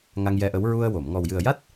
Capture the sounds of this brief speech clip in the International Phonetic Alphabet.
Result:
ŋ a˧ ŋ j ɛ˧ ʔ ə˧˥ w ɹ u˧ ə̯ w o˨˩˨ m ŋ ɔ˨˩ w j ɨ˨˩ ə̯ j a˦˥ t̚

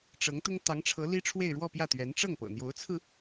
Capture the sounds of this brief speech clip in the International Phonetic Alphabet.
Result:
ʈ͡ʂ ɤ˧˥ ŋ t̪ ʊ˥ ŋ t̪ ɑ˧˥ ŋ ʈ͡ʂʰ ɤ˧˥ l i˥ ʈ͡ʂʰ w e˥˧ ɪ̯ ɻ w ɔ˥˧ p j ä˥˩ t̪ ɥ ɛ˧˥ n ʈ͡ʂ ɤ˥˩ ŋ p ɤ̰˨˩ n̪ j o˧˥ ʊ̯ t͡sʰ ɹ̩˧

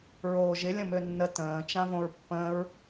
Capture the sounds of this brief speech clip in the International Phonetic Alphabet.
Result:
ɹ oː ʒ ɪ lʲ ə̃ m ø nː ə t ə̃ː t͡ʃ ã v õ ɹ pː ə̃ː ɹ

